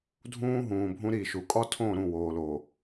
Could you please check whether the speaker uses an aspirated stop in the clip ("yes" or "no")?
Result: yes